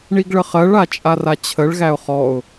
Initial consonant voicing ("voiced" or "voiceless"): voiced